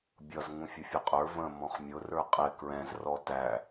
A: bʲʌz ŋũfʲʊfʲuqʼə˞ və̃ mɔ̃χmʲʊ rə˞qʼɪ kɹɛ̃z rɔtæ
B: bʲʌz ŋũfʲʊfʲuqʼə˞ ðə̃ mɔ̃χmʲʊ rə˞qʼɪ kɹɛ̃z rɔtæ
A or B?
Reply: A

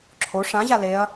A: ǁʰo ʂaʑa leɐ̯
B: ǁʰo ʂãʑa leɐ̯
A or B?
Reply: B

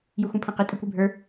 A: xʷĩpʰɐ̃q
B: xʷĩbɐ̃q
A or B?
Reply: A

